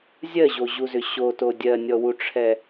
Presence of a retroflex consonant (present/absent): present